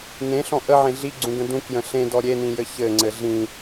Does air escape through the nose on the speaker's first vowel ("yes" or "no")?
yes